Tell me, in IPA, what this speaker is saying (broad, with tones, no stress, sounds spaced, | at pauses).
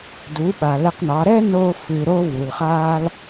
d u˨˦ ɓ a˨ l ɛ˧ q n ɑ˨˦ ɾ ɛ˦ n o˧ f ɨ˨ ɾ o˦ v u˨ l χ aː˦ l